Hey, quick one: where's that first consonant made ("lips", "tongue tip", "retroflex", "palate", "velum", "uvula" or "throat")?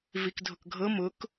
lips